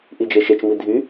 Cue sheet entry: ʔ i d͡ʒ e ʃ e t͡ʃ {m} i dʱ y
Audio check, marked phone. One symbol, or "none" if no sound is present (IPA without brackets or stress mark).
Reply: m